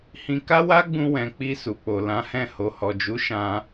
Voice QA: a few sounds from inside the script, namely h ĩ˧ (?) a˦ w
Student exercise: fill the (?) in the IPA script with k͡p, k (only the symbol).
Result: k